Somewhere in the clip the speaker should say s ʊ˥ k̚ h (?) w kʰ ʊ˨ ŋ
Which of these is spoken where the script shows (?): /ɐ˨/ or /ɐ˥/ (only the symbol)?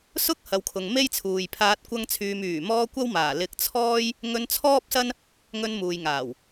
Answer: ɐ˨